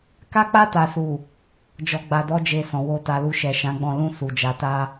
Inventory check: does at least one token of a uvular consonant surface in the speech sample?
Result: no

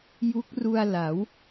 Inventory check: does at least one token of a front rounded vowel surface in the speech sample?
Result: no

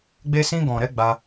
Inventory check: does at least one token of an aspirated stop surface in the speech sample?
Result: no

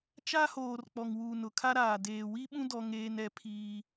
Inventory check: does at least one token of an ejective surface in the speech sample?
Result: no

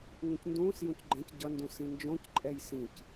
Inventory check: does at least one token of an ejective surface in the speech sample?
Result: yes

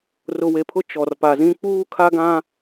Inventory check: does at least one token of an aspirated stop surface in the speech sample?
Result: yes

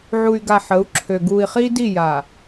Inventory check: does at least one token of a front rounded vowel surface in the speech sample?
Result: yes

